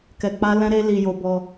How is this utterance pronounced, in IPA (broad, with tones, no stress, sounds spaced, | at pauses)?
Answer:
k ɛ˧ k͡p a˦ l ɛ̃˦ ɾ e˦ l i˧ j o˧ b ɔ˧